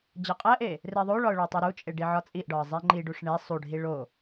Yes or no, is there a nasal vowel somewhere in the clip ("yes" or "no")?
no